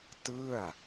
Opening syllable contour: falling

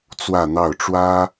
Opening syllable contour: falling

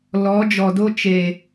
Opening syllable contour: rising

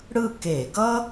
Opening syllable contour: falling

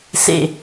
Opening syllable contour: low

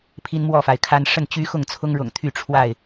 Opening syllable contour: high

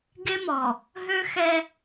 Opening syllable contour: high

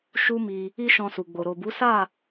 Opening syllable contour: high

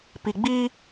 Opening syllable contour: low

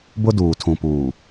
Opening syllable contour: high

